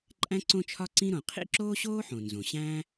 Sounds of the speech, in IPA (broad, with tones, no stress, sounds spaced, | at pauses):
ǃʼ æ̃˥ ǀ õ˥ t͡ʃʰ ɒ˥ ǀ ĩ˥ ɾ õ˩ qʰ ḭ˥ ǁ oː˥ ɕ oː˥ ħ õ˩ n z õ˩ ɕ æ̃ː˥